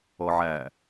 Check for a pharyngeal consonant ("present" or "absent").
present